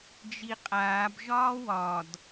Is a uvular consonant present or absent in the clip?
present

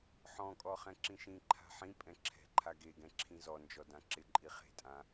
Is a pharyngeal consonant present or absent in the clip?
present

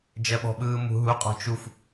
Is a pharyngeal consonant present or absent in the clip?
absent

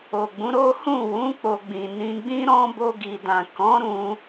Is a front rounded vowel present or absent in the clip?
absent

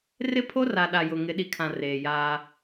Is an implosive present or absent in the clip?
present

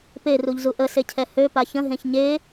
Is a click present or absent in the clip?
absent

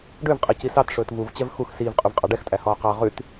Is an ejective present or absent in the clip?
present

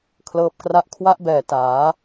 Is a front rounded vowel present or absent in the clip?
absent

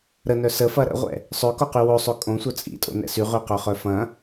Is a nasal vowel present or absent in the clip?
present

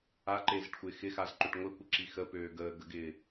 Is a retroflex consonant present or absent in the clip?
present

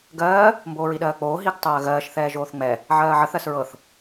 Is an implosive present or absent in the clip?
present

